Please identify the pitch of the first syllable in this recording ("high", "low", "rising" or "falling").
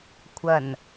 low